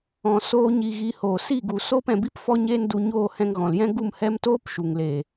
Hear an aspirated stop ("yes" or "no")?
no